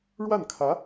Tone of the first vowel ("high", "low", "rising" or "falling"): falling